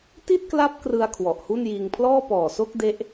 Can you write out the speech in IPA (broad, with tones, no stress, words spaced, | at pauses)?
ti˥˩t̚kla˦˥p̚ krɯ˧a̯ kʰwɔ˨˩ʔhu˥˩njiː˧ŋ pʰlɔː˥˩pɔː˨˩so˥˩k̚ de˦˥ʔ